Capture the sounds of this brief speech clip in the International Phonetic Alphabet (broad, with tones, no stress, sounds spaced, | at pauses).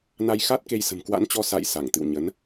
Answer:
n a˧ j x a˦˥ t̚ k e˧ j s ə̤˨˩ m k w a̰˧˥ n t͡ɕ ɔ˧ s a̰˧˨ j s a˧˩ ŋ t̪ ɨ̰˧˨ w ɲ ə˨˦ n